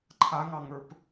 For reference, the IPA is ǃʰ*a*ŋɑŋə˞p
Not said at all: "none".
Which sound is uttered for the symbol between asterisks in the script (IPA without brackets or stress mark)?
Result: a